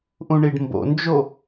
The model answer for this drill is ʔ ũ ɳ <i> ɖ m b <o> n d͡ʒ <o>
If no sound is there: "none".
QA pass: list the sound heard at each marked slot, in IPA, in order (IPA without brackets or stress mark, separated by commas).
i, o̰, o